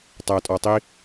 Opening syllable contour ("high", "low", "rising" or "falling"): low